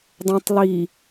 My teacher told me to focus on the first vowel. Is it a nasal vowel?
yes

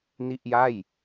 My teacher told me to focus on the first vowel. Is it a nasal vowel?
no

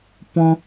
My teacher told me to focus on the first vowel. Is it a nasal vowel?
yes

